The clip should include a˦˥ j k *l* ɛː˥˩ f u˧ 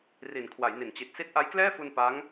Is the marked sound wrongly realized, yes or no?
no